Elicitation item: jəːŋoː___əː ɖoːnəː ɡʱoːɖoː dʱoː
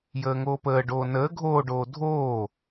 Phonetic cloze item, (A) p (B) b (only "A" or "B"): A